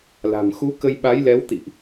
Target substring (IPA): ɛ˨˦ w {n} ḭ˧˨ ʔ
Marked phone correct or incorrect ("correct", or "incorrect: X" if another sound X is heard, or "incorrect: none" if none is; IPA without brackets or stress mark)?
incorrect: t̪